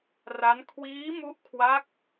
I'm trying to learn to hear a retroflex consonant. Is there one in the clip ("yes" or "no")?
no